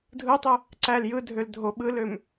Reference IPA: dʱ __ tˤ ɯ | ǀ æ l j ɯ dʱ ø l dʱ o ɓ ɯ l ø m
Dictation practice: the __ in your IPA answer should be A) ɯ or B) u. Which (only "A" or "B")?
A